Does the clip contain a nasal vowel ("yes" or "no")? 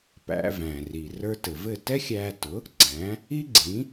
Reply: yes